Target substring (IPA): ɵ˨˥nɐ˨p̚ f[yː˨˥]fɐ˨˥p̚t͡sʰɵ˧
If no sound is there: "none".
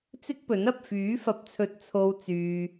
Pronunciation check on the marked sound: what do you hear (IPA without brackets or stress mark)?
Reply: yː˨˥